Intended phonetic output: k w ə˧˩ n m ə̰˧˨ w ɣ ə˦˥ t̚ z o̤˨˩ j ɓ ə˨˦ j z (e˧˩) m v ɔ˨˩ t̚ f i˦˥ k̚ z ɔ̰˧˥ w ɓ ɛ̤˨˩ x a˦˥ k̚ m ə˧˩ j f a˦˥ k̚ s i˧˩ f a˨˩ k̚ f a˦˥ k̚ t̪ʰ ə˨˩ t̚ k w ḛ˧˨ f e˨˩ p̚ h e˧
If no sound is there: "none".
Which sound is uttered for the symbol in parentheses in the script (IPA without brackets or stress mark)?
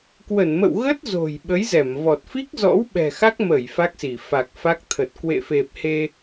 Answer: ɛ˧˩